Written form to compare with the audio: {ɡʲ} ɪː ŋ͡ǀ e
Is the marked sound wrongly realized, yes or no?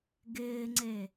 yes